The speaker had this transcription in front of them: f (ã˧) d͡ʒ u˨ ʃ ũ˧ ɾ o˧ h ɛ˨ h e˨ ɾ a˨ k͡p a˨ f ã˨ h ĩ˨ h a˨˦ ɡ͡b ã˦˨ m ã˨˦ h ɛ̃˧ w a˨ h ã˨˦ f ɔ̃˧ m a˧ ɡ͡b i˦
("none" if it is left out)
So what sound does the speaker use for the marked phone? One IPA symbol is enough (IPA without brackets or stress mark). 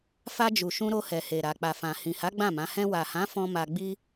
a˧